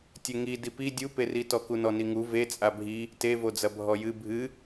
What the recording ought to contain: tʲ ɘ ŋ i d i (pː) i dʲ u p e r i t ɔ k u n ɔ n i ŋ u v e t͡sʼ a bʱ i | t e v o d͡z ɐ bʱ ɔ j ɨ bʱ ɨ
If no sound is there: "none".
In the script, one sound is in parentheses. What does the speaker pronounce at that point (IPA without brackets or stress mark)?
p